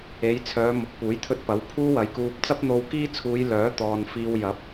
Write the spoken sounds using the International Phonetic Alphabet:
e˨˧ j t͡sʰ œː˨˧ m ʊ˨ k̚ p uː˨˥ j t̪ʰ ɵ˥ t̚ p ɐ˨˥ w pʰ uː˥ w ɐ˨˥ j k uː˧ p̚ t͡s ɐ˥ p̚ n̪ o˧ w k iː˥ t͡sʰ uː˨˧ j l œː˨˥ t̪ ɔː˨ n f iː˧ w j ɐ˨˥ p̚

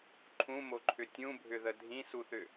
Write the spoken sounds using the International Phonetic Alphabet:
ǃʰ ũ m o ǃʰ ʏ tʲ ũ bʱ ʏ ð ə dʱ ĩ s u θ ʏ

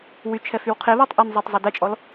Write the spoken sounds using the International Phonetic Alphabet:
w y t͡ʃʰ ɛ f y w qʰ e β a tˤ ʔ ə n zˤ e tˤ zˤ ɛ d ɛ t͡ʃʼ ɔ l

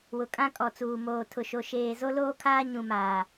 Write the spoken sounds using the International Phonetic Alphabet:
w ʊ˨ kʼ ã˦ kʼ ɔ˨ t͡s uː˨ m oː˨ tʰ ʊ˨ ʃ o˨ ʃ eː˨ z o˦ l oː˦ kʰ aː˦ ɲ ũ˨ m aː˨

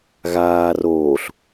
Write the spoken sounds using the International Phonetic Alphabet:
ɣ aː r oː ɬ

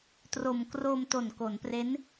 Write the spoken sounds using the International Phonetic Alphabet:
t r o˨˩ m k r oː˧ m t o˨˩ n k o˩˦ n p r e˦˥ n

